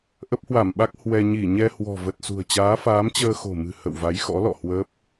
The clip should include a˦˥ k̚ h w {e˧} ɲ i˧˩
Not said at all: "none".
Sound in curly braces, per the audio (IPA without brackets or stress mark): ɛ˧